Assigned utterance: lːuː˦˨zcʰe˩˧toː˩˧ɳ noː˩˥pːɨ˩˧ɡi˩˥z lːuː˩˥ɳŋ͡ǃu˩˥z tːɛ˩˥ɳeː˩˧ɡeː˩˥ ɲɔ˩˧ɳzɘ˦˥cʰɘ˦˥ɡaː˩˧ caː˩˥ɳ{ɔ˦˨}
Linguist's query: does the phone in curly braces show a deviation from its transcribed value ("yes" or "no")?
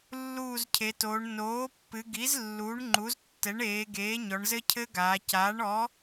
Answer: yes